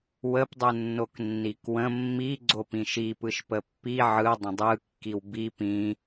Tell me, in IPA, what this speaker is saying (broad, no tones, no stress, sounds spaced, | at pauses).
w ə p dˤ ɯ nː o k nː i k w ə̃ mː i ɡ͡ǀ o p ĩ ʃ i p ɯ ʃ p ə pː i ʕ ɯ dˤ ə̃ dˤ ɯ kː i w b i p ĩ